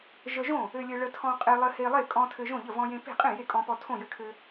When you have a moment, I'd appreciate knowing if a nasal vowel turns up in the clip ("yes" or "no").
yes